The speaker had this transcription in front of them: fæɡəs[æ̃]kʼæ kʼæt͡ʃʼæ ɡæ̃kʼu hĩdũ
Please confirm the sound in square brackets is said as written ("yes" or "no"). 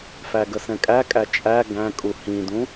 no